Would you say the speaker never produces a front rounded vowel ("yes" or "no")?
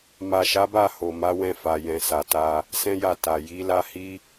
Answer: yes